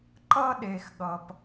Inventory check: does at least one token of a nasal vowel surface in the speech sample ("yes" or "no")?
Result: no